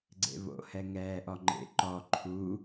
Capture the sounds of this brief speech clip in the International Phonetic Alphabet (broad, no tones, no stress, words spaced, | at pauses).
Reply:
ɡ͡ǀḛβo̰hɛ ŋɛːʔɔŋ͡ǃḛ ǃɔ ǃʰu